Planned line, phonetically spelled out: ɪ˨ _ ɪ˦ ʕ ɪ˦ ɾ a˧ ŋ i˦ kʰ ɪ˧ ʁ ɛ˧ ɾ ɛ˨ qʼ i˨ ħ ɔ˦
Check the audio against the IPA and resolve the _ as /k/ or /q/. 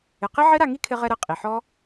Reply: q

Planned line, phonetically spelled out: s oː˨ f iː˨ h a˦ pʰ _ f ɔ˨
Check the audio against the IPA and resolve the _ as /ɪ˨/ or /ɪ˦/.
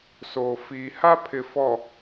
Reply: ɪ˨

